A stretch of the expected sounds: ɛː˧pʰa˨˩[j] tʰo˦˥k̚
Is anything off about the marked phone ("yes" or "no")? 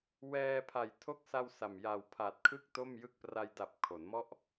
no